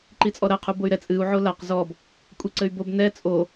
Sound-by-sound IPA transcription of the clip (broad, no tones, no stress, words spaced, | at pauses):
ǃit͡sʼɔɾɐ qʰuboy̯ɾɛ t͡sʼɨu̯ ʕolaq zɔb | kʷʼeǀɘy̯bob nɛ t͡sʼo